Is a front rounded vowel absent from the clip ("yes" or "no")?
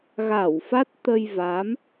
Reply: yes